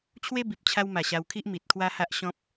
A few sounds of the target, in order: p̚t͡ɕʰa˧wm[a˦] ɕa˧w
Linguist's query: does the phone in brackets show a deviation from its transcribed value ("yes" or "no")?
yes